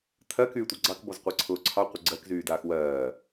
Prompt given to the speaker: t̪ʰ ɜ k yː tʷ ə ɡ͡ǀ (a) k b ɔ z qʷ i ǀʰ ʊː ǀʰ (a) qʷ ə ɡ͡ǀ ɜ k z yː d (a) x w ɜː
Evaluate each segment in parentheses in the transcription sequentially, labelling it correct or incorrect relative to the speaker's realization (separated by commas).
incorrect, incorrect, incorrect